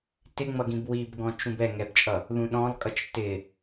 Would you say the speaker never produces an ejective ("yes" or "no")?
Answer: no